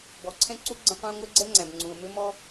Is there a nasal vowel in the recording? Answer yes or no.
yes